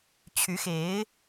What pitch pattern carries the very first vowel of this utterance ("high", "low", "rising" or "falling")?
rising